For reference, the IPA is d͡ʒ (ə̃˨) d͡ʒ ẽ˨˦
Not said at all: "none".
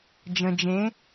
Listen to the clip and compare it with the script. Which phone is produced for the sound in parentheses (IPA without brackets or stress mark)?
ə̃˨